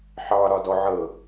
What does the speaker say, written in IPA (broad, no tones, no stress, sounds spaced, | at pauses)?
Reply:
ħ ɑ ɾ ɒ d ɔ ʕ ɤ